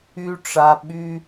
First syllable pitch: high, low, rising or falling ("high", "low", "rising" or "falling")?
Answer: high